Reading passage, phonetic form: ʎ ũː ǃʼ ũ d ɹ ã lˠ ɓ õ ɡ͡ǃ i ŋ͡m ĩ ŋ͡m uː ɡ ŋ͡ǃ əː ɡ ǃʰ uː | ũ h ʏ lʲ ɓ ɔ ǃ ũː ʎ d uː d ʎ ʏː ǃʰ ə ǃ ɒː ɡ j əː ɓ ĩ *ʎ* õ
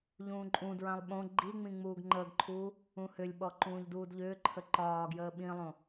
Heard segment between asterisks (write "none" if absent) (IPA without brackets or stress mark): lˠ